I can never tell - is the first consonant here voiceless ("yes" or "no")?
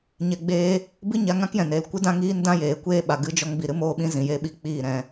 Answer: no